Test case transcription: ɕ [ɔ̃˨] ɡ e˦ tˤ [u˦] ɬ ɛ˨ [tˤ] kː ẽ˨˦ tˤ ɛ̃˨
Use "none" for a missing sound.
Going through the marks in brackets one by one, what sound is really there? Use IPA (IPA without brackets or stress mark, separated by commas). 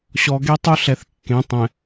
ɔ˨, u˦, θ